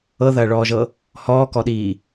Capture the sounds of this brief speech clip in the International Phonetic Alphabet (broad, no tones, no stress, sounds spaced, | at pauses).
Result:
ɤ ð ɐː ɭ ɔː ʒ ɤ | h ɔː k ɔ ɗ iː